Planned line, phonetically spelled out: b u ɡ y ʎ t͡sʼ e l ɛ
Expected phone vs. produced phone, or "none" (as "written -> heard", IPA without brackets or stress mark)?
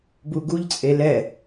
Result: y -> u